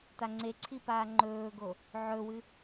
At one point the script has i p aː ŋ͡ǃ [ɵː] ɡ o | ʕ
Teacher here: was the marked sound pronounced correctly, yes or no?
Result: yes